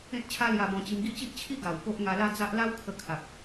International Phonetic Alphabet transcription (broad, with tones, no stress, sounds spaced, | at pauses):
ẽ˦ t̚ t͡ɕʰ a˦ l j a˧ b ɔ̃˧ t͡ɕ i˧ m ɡ i˥˧ t͡ɕ i˦ ʔ t͡ɕʰ i˦ ɡ a˨˩ w p o˦ ʔ ŋ a˧ l a˦ d͡z a˦ ʔ l a˦ w kʰ ə˧ kʰ a˨ k̚